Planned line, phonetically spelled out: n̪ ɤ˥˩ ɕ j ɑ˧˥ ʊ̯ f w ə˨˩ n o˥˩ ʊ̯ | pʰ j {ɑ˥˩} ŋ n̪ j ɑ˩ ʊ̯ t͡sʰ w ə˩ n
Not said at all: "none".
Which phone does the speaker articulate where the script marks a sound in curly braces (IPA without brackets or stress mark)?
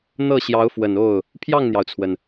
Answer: ɑ˥˩